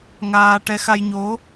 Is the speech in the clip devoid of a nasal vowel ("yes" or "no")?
yes